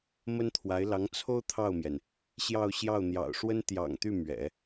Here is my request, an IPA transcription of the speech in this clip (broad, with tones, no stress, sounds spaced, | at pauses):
m ə˥ n t̪ʰ w a˧˥ ɪ̯ l ɑ˧˥ ŋ t͡sʰ o˥ ʊ̯ t̪ʰ ɑ˥˩ ʊ̯ m j ɛ˩ n | ɕ j ɑ˥˧ ʊ̯ ɕ j ɑ˥˩ ʊ̯ n̪ j ɑ̰˨˩ ʊ̯ ʂ w ə˥ n t̪ j ɑ̰˨˩ ŋ t̪ y˥˩ m ɥ ɛ̰˨˩˦